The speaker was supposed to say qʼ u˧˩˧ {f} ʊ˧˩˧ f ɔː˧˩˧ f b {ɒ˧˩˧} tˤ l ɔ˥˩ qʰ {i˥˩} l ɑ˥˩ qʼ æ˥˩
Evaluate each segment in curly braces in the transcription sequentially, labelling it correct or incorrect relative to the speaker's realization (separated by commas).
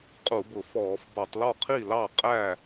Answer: incorrect, correct, correct